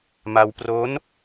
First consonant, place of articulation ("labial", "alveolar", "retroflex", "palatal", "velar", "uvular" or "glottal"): labial